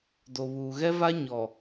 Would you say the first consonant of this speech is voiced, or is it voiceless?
voiced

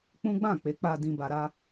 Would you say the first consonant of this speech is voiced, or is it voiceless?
voiceless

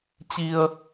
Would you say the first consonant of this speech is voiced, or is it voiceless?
voiceless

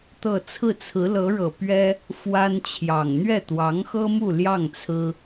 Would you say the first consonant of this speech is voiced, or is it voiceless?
voiceless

